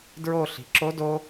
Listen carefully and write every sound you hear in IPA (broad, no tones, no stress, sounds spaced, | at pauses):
d ɹ o ɬ i̤ ǁ o d o